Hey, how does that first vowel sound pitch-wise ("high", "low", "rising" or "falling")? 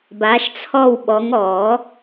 rising